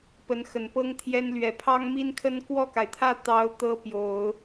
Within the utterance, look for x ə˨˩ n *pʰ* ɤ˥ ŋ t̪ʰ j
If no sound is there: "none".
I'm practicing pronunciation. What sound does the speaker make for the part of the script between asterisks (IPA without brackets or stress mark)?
p